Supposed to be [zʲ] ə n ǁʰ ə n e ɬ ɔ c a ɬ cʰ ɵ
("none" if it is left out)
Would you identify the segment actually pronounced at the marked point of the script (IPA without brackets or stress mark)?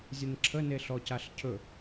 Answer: zʲ